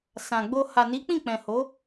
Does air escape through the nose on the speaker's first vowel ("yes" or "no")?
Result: yes